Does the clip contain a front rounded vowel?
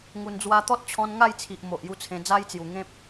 no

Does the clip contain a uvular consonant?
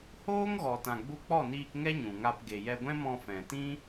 no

